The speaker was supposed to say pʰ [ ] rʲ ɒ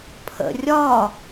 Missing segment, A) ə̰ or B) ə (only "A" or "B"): A